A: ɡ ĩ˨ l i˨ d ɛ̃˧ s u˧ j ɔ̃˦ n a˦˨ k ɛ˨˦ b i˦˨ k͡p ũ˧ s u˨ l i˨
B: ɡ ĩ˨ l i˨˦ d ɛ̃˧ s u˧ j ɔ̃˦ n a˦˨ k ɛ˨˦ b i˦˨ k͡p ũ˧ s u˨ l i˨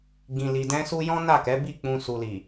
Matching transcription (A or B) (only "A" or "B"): A